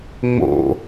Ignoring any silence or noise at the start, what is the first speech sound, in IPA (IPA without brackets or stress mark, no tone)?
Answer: ŋ͡m